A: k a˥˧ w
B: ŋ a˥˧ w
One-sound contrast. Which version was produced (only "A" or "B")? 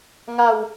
B